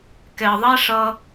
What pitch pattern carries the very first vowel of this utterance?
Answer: low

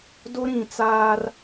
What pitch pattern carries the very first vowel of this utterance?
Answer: high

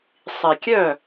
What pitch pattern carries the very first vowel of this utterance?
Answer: low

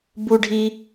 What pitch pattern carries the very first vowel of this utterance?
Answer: high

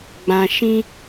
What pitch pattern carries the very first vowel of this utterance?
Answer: low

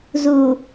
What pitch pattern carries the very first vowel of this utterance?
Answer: low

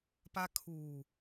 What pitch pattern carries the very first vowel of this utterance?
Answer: high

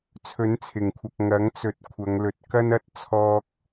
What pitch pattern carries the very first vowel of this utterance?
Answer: rising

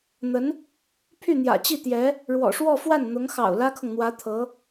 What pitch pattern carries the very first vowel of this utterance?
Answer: rising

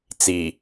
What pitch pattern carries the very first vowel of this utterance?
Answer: low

